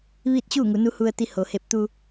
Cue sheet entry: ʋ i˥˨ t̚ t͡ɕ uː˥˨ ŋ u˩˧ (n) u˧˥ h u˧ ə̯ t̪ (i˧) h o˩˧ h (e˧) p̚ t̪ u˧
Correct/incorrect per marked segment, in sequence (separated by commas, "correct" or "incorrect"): correct, correct, correct